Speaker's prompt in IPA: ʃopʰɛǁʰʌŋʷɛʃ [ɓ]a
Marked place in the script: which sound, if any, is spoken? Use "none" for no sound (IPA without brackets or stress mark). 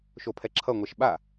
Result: ɓ